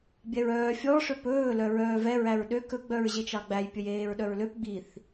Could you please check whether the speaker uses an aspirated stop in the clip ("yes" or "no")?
no